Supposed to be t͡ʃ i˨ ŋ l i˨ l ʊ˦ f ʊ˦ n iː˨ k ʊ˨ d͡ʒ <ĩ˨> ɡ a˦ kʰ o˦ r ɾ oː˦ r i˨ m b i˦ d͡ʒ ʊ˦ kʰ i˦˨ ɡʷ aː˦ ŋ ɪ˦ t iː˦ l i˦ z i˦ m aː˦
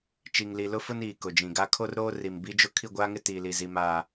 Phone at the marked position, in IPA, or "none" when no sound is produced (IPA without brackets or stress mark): ĩ˨